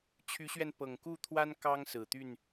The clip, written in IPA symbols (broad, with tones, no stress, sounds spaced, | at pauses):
t͡ɕʰ y˨˦ ɕ ɥ ɛ˧ n p ɤ˨˩ ŋ k u˥˨ t̪ʰ w a˦ n k ɑ˦ ŋ s ɹ̩˨˩ t̪ y˥˨ n